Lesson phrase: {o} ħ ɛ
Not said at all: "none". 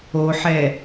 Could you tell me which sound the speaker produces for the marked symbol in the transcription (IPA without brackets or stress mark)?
o